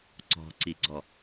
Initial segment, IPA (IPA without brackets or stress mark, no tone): ǀ